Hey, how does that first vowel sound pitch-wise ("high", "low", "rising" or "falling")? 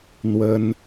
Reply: high